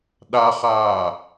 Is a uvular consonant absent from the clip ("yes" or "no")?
no